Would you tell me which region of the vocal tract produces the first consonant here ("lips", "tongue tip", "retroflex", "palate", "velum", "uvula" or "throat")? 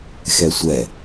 velum